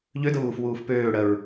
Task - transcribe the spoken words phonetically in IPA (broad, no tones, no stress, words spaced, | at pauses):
ʎødəβuːfwuːf pøːɽɜɹ